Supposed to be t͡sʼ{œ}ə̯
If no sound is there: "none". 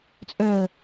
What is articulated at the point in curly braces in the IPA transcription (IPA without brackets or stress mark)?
œ